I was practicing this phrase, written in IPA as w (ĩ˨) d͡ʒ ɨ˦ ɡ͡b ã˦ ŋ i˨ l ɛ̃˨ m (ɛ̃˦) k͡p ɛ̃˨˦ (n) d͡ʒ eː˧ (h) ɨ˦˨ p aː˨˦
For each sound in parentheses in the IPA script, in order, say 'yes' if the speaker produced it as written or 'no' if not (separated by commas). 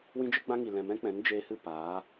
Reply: no, yes, yes, yes